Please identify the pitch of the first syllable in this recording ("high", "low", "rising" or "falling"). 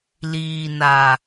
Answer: low